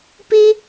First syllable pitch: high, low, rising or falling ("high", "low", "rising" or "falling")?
high